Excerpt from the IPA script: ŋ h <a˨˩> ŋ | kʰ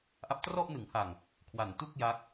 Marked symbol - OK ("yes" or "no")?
yes